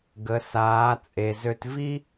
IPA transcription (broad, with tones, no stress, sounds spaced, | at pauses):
ɡ ə˩˧ s aː˩˧ t͡sʼ e˩ z ø˧ t v i˥